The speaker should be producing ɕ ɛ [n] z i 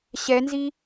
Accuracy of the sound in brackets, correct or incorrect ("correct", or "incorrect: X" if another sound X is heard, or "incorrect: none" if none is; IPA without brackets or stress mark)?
correct